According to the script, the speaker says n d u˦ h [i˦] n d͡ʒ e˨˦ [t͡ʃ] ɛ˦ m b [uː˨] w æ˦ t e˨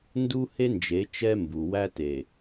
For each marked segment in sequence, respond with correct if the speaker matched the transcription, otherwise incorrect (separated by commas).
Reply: incorrect, correct, incorrect